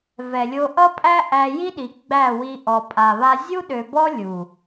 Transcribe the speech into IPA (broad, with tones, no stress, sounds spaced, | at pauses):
v ɛ˨ lʲ o˧ ʔ ʌ˦ pʼ æ˦ ʔ æ˧ j i˦ ɗ i˨ ɡ͡b æ˦˨ w i˧ ʔ ɔ˨ pʼ a˨ β a˧ zʲ u˦ ɗ ø˨ b ɔ˦ lʲ u˨